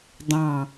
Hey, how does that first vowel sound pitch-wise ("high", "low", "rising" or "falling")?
low